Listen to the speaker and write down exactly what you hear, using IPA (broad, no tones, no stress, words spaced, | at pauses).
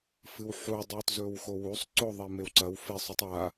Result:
fɨwħu dˤuːtzɵːwxowusˤ ǀo ðˤemewǀɐw fe sˤʉtˤa